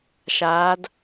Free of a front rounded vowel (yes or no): yes